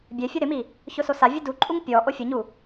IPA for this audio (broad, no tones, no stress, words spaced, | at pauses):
bʲɛfʲʊ ɾɪmi | çʊsosa vʲʊduǃʼuŋ pʲɔ ʔofʲʊɲu